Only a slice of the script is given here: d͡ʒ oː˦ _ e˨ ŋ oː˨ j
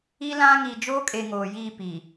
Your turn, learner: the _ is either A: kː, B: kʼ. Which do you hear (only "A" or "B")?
B